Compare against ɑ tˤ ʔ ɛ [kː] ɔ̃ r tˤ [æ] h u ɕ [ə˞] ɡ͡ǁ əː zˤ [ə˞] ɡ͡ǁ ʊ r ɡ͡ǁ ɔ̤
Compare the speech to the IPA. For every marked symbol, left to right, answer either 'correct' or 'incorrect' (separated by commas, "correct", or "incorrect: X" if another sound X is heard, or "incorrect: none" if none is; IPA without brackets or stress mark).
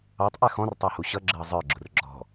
incorrect: x, correct, incorrect: ʌ, correct